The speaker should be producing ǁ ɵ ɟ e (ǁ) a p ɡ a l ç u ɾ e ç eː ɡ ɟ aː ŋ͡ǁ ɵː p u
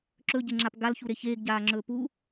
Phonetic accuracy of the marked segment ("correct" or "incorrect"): incorrect